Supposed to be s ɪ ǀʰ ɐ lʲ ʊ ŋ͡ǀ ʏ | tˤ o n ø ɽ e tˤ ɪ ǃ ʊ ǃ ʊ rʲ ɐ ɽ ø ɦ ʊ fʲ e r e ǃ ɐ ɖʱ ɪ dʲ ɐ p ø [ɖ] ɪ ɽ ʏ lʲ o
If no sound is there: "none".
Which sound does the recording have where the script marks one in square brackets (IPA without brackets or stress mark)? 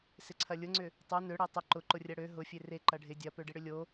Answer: ɖ